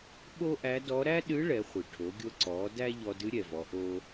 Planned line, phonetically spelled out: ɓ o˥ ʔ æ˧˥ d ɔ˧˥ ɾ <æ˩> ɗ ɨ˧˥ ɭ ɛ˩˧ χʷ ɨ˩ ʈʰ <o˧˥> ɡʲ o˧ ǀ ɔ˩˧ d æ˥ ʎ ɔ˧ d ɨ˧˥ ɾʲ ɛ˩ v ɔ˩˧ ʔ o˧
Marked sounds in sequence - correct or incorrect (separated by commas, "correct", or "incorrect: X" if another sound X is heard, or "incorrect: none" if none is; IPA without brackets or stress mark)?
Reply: incorrect: æ˥, incorrect: o˩˧